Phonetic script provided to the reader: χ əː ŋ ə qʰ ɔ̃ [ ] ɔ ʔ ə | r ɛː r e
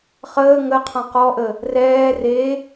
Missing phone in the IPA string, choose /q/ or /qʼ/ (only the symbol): q